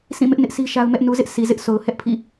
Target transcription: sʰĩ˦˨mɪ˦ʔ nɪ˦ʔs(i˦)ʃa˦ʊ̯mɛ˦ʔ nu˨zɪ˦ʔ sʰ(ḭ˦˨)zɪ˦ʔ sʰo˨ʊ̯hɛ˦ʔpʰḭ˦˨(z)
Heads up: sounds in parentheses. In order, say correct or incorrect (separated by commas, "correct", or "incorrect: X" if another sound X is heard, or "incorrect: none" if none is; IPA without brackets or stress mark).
correct, incorrect: i˨, incorrect: none